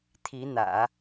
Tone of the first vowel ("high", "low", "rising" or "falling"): rising